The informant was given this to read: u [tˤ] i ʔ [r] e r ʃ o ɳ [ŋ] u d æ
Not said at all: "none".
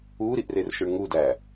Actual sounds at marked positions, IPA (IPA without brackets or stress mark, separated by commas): ɾ, r, ŋ